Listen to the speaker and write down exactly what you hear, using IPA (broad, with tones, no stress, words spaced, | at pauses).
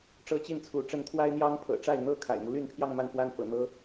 ʈ͡ʂɤ˥t͡ɕi˥˩nt͡sʰu˧˥ʈ͡ʂə˥n t̪ʰwa˥ɪ̯n̪jɑ˥ŋ pʰɤ̰˨˩ʈ͡ʂa˥˩ɪ̯n̪ɤ˥ kʰa̰˨˩ɪ̯mu˦ly˥˧npʰjɑ˥˧ŋ ma˥˧nfwa˥˩n fɤ̰˨˩n̪ɤ˥